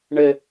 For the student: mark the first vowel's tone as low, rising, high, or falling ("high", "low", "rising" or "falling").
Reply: low